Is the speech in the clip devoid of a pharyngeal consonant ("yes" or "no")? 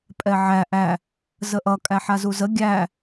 no